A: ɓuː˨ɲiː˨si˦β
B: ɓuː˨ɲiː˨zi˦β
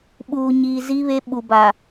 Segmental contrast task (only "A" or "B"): B